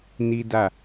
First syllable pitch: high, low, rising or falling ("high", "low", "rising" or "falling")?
high